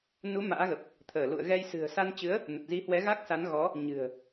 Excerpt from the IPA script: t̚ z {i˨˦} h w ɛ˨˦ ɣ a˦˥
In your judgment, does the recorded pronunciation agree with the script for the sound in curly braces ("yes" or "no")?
yes